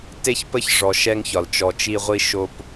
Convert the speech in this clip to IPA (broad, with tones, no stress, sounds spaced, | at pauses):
t e˦ ç p ə˦ ç ʐ ɔ˨ ʃ ɛ˦ ŋ ç ɒ˨ l t͡ʃ ɔ˨ t͡ʃ i˦ ʁʷ i˦ ʃ o˦ p